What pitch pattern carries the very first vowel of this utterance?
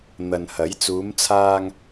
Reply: low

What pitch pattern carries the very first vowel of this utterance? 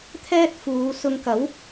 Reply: high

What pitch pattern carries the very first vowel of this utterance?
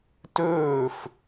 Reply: falling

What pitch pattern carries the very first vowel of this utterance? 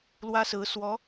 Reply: high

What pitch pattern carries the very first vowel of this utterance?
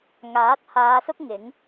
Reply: rising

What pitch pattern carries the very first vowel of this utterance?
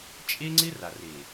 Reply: high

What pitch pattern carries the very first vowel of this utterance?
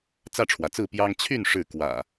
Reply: falling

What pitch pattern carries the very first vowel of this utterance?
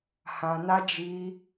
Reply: low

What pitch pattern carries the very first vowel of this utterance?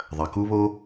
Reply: low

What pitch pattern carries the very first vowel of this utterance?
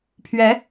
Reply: rising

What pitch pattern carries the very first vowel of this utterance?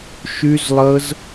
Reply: high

